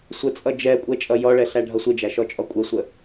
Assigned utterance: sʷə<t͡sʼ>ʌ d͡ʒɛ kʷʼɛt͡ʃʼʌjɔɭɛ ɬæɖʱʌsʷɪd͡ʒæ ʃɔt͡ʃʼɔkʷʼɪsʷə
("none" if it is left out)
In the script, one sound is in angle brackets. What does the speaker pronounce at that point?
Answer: t͡sʼ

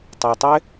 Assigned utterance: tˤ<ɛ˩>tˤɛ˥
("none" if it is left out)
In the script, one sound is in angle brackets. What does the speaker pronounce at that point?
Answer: ɛ˩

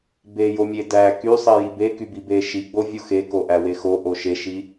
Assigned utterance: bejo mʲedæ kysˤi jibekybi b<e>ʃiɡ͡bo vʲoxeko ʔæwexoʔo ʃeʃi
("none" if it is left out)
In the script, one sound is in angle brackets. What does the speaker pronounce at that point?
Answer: e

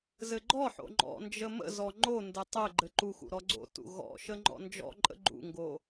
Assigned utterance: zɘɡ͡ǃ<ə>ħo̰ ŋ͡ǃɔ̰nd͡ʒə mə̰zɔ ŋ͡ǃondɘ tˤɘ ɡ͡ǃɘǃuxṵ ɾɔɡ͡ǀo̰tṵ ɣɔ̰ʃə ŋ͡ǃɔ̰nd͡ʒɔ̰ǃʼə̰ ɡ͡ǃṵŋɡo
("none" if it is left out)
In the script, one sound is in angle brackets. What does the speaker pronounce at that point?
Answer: ɔ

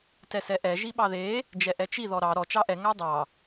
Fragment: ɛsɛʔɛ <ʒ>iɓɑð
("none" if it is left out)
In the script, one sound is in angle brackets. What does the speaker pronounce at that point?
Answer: ʒ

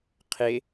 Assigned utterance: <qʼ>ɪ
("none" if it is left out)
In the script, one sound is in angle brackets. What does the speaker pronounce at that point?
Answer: qʰ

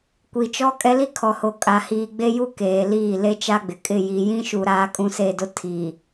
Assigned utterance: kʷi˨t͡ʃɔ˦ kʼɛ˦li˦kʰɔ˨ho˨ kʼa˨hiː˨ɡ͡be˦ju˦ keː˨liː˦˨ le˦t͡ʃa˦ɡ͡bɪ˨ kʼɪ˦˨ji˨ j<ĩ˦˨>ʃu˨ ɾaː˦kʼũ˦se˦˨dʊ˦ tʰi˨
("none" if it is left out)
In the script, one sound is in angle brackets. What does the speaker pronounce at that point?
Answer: ĩ˦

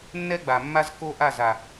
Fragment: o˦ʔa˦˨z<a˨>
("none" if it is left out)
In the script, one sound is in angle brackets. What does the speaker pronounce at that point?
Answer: a˨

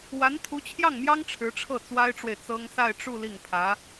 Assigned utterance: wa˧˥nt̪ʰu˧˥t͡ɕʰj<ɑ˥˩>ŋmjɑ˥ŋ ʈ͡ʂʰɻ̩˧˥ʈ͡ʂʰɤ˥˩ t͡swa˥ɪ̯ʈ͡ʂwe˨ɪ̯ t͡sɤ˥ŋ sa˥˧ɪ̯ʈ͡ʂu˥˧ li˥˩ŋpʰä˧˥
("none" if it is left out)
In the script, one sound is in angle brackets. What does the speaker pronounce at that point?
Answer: ɑ˥˩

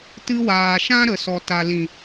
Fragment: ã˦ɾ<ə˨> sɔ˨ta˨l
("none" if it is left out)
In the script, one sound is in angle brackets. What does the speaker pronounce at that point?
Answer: ə˨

